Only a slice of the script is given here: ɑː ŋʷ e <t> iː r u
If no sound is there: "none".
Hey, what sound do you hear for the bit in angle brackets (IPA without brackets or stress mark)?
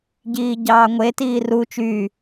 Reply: t